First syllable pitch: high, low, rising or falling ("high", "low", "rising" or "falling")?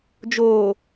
low